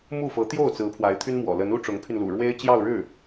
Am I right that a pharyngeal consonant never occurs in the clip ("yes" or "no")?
yes